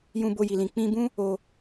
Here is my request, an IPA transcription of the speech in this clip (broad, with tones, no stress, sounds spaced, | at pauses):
j ũ˧ b o˧ j i˨ l ĩ˨ k͡p ĩ˧ b ũ˦ | o˧